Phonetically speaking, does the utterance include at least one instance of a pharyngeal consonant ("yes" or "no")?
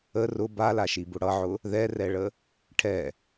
yes